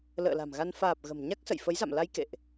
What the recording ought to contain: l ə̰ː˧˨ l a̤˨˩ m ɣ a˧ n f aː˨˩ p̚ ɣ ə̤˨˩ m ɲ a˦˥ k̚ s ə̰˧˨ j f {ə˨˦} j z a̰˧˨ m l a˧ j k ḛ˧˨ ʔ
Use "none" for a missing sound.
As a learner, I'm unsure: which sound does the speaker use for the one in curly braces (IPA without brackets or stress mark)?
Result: ə˨˦